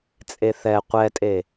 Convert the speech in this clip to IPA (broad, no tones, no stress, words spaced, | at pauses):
t͡sʼeθɛ qʷɛtʼe